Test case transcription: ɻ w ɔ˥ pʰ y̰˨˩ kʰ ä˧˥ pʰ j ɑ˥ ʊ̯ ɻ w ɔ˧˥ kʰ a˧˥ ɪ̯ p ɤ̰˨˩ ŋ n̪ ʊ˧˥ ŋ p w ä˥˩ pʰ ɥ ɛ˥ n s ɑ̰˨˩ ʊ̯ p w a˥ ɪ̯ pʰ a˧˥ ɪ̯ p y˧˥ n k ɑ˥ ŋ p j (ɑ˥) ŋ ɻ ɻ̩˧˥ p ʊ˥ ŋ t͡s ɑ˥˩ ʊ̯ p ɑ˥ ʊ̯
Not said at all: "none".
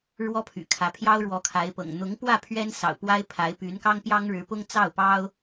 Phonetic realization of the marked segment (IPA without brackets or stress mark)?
ɑ˥